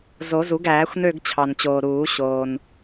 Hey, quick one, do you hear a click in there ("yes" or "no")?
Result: no